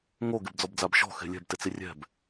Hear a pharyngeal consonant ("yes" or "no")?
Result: no